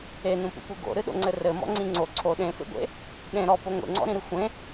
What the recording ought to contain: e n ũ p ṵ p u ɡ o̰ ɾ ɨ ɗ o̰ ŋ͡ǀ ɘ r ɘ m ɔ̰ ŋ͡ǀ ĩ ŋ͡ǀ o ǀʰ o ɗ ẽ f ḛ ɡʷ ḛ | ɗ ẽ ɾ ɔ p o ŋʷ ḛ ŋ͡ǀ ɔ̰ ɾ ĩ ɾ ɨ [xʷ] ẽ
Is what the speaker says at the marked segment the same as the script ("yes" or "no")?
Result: yes